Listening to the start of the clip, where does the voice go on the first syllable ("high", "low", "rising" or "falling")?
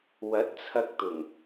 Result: rising